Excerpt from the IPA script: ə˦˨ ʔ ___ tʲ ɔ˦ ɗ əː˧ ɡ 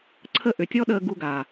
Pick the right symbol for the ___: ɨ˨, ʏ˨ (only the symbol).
ʏ˨